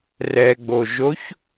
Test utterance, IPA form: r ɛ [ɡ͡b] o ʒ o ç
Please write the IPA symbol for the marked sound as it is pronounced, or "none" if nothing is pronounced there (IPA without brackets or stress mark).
ɡ͡b